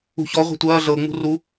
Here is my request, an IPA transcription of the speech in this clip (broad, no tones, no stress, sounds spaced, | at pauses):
ṳ ç ɔ ʁʷ ɛ̤ tʷ ɐː ɮ ɤ ŋ͡m ṳ r u